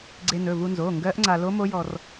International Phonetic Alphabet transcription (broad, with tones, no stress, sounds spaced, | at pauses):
ɡ͡ǀ e˧ n ɵ˩˧˩ v u˧ n z oː˩˧˩ ŋ ɡ ɜː˦˥ ʔ ŋ͡ǀ a˧ l o˦˥ m o˦˥ j ɔ˧ r